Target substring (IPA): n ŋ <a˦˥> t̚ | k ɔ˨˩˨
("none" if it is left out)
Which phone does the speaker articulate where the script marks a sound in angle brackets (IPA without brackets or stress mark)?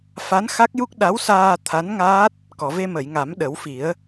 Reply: aː˦˥